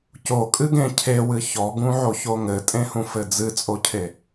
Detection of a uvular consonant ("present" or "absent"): absent